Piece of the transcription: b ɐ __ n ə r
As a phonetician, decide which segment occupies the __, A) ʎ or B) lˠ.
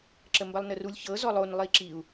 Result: B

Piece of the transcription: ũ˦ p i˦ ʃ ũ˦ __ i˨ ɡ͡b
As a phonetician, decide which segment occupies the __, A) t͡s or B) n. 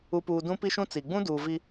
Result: A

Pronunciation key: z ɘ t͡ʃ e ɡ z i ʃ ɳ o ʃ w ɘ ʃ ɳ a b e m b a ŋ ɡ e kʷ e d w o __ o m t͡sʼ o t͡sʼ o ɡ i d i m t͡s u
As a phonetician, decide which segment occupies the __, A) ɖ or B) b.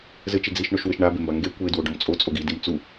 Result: A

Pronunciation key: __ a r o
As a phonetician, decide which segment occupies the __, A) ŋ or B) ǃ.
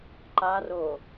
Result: B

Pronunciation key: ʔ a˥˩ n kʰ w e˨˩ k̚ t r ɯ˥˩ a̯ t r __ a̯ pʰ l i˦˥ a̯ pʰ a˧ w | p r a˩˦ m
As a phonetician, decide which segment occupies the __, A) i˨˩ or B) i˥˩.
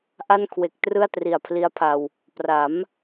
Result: A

